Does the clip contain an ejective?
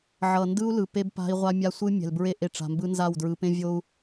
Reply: no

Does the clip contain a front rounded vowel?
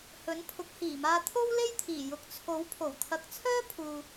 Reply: yes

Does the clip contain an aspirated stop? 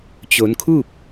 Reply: yes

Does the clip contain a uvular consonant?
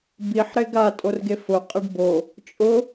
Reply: yes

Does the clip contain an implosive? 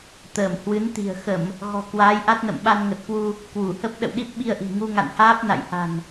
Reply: yes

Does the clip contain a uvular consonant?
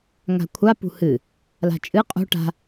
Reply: yes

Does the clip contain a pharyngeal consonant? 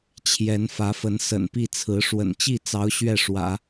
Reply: no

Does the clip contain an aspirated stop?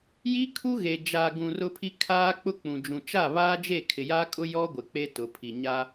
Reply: yes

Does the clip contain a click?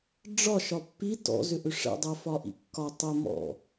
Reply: no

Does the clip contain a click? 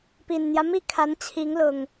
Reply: no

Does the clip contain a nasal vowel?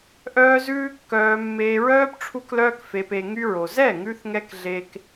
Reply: no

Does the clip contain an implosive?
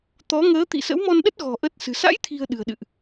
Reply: yes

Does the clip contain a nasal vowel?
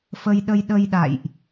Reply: no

